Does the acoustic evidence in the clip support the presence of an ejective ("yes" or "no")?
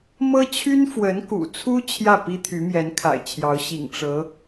no